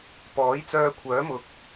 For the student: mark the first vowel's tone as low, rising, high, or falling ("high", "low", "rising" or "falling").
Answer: rising